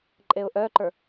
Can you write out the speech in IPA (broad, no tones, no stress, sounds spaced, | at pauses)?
ǃʼ e ʊ̯ ʔ œ ǃ ə˞